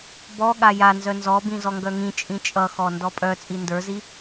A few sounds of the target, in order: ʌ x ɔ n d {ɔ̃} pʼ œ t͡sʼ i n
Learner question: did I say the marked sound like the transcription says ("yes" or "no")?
no